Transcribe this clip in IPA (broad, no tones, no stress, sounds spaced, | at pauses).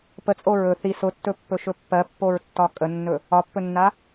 p ə t͡sʼ o ɹ ɵ θ i s ʊ tː ɵ pː ɵ ʃ ɵ pː ɜ pː o ɹ tː ɒ kʼ ə nː ɵ | ɒ pː ɵ nː a